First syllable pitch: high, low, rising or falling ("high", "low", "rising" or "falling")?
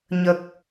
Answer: low